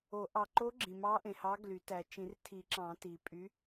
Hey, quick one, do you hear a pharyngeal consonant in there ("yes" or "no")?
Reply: no